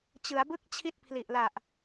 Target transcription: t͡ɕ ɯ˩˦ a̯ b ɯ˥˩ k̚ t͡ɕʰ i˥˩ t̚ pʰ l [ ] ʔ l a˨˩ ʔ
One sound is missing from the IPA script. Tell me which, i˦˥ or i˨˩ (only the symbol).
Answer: i˨˩